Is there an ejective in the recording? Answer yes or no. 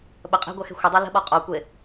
yes